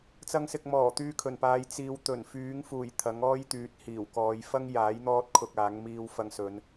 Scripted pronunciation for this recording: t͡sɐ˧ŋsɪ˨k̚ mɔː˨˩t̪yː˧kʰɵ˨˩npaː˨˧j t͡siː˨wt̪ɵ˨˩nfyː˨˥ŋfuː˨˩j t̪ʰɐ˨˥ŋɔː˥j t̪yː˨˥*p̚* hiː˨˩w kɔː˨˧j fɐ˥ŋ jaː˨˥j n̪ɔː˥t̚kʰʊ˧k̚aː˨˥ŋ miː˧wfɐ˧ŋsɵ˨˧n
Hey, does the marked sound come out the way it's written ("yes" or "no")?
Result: no